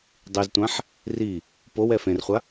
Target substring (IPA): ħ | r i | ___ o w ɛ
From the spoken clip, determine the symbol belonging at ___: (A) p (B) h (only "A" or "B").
A